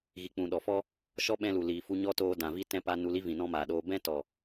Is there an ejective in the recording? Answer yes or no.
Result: no